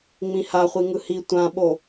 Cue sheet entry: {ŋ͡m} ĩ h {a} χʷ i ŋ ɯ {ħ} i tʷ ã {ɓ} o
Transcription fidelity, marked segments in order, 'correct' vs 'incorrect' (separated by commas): correct, correct, incorrect, correct